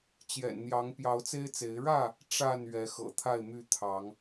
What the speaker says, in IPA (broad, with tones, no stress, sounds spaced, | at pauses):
t͡ɕ j ɛ̰˨˩ n n̪ j ɑ˨˦ ŋ p j ɑ˨˦ ʊ̯ t͡s e˦ ɪ̯ t͡s e˨˦ ɪ̯ ɻ ä˥˨ | ʈ͡ʂ a˥˨ n ɥ ɛ˨˦ x ɤ̰˨˩ t̪ʰ a˥˨ ɪ̯ m y˥˨ t̪ʰ ɑ˨˦ ŋ